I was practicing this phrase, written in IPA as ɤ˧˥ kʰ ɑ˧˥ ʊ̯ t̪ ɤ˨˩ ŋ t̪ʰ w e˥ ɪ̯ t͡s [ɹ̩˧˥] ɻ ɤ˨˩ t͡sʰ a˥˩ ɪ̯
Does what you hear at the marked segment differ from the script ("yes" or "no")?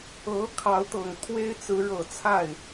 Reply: no